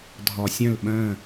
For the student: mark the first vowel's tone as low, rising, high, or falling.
low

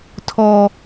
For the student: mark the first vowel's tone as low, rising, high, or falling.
low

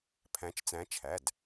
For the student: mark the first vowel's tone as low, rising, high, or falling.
rising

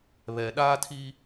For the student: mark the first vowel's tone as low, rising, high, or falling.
low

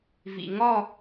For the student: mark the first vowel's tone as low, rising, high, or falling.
low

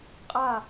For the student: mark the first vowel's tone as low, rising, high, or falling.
falling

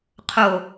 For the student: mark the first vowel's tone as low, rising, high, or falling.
low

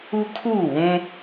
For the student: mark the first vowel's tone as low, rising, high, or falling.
high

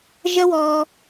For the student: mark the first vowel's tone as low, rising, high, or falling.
high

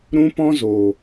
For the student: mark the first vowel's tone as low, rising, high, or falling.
high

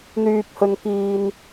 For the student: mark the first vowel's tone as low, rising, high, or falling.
low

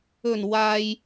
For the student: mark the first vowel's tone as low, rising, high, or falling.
low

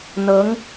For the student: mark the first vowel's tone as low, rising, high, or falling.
rising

